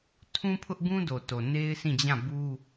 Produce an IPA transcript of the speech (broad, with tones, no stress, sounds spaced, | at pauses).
tʰ ũ˦ pʰ ʊ˦ ʔ ɡ ũ˦ d o˨ t o˨ n e˦ ɪ̯ s ĩ˦˨ d͡ʑ ã˦˨ b u˦